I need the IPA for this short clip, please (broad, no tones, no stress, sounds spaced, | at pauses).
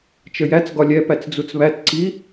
t͡ʃ ə j æ t͡s ɡ ɒ lʲ ɛ p æ t͡s d͡z u t͡s β æ t ǀ i